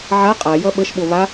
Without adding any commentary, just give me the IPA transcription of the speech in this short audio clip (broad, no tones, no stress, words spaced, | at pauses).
ʕa qʼajʌ ɓəʃɓo βa